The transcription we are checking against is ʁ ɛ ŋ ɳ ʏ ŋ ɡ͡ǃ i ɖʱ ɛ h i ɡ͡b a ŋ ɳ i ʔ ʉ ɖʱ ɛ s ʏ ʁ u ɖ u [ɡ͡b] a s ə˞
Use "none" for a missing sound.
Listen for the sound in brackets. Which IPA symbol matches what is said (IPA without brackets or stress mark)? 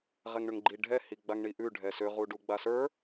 ɡ͡b